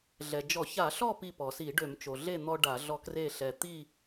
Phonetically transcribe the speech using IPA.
ɮ ɛ˩ d͡ʒ ɔ˧˩˧ ç a˧˩˧ ɬ ɔ˥˨ p i˧˩ p ɔ˩ s i˧˩˧ ɖ ø˧˩˧ m t͡ʃ o˩ ɮ e˥˨ n̪ ɔ˦ ɖ a˧˩˧ ɮ ɔ˦ k r e˥˨ ɬ ɛ˧˩ t̪ i˥˨

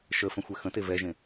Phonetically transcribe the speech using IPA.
ʃ ə f ə̃ xʷ ɛ x ə̃ t e v ɛ ʒ ẽ

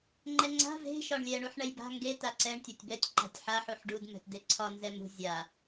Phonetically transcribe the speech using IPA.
ŋ͡ǃ ɛ ŋ͡ǀ a̤ v e̤ ʃ ɒ ɳ lʲ ɛ ɳ u ħ ɳ ɛ j b a̤ ŋ ɡ e t a ǀ ɛ ɳ tʲ ɒ tʲ b ɛ tʲ ǃ a̤ tʲ ħ a ħ u ħ ɖ u d m ɛ̤ t d e ǀʰ ɒ n z ɛ m ṳ zʲ a

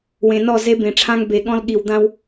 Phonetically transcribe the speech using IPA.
w ẽ˨ n ɔ˦˨ z e˦ b ẽ˨ ʈ͡ʂʰ ã˦ ŋ b e˨ ɠ ɔ̃˦ l ɠ i˨ w d̪ ã˦ w

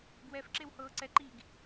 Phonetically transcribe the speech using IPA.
ɡ w ɛ f ǁ e w h ɤː ǀ ɛ ǃ iː ɡ

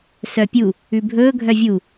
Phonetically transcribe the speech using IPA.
s œ pʲ u | ʉ bʱ ɵː ɡʱ œ vʲ u

